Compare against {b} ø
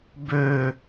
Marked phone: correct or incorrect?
correct